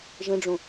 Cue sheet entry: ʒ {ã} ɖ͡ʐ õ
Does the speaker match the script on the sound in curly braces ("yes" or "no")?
no